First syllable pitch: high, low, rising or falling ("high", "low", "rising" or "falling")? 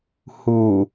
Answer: low